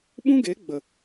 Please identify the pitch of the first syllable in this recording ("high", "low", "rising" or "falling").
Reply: high